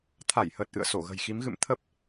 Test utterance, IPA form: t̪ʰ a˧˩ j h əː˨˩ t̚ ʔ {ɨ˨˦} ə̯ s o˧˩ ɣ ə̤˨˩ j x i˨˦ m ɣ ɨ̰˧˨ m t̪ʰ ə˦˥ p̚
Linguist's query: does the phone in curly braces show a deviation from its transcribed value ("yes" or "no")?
yes